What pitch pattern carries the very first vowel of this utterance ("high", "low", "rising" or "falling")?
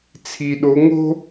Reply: low